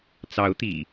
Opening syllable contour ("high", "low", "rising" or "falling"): rising